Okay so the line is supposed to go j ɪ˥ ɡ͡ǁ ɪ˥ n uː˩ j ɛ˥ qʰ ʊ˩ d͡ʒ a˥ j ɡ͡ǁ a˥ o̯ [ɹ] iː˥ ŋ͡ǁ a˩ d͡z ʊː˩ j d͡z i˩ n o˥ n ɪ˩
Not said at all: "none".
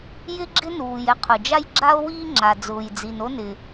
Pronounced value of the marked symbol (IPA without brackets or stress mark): w